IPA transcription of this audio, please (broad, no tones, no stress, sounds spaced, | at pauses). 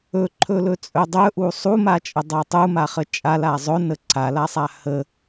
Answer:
ɵ ǃʰ ɵ l ɵ t͡sʼ ɵ dˤ ɵ ʔ u sˤ u m a t͡ʃʼ ə dˤ a tˤ u m a χ ə t͡ʃʼ a l a zˤ ɵ n ə ǀʰ a l a sˤ a h ə